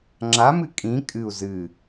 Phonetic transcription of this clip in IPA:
ŋ͡ǁ a m ɨ kʼ ĩ kʼ ɨ u̯ z ɨ

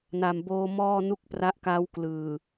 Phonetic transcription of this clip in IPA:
n a˨˩ m b oː˧ m ɔː˥˩ n u˥˩ k̚ p r a˦˥ ʔ k a˦˥ w k l ɯː˨˩

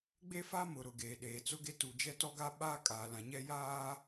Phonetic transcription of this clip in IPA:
ɡ͡b e˦ f a˦ m ʊ˨ ɾ ʊ˨ ɡ eː˨ ɗ eː˨ t͡s ʊ˦ ɡ e˦ t u˨ d͡ʒ ɛ˦ t ɔ˦ ɡ a˦ ɓ aː˦ kʼ aː˨ l ã˨ ɲ ɛ˦ j aː˦

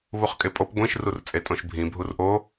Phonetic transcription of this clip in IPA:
β u χ kʼ e pʼ o p ɡʷ ĩ ʃ r u r t͡sʼ e tʼ õ ʃ bʱ ĩ bʱ u r ʔ o

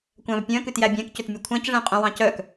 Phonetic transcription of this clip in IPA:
kʷ æ̃ v pʲ œ̃ k ʉ t j æ bʲ æ̃ k c ɵ t mʲ ɵ kʷʰ æ̃ c ʐ ɛ̃ qʼ œ̃ w ɑ̃ c œ k

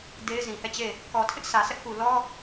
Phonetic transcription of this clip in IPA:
d e˦ ɪ̯ z ĩ˨ h ɛ˦˨ t͡ɕ e˦˨ | k ɔ˨ tʰ ɪ˦ ʔ s ä˨ s ɛ˦ ʔ k u˨ l ɔ˦

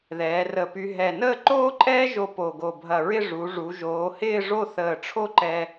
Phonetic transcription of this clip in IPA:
ð ɛː˩˧ r ə˧˩ p y˧ ɦ ɛ˧˩ n əː˥˧ ǃ oː˥ ǃʼ ɛː˥ ʒ o˧ p o˧˩ ɡ o˧˩ bʱ ɐ˧˩ ɹ ɪ˥˧ ʐ u˩˧ ʐ u˩˧ ʒ oː˩˧ h ɪː˥˧ ʐ o˥˧ θ əː˧˩ ʈ͡ʂʰ o˥˧ ǃ ɛ˧

